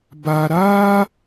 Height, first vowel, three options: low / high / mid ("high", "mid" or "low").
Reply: low